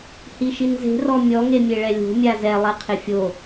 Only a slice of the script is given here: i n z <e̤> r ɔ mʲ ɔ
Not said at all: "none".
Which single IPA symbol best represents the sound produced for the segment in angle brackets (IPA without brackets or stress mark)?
e̤